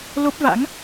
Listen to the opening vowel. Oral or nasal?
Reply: oral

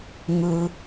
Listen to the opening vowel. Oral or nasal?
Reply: oral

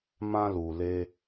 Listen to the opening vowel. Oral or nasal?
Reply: nasal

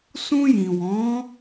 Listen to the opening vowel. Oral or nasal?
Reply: nasal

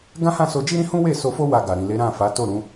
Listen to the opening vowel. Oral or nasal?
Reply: nasal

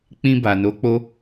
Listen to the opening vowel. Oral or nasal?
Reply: nasal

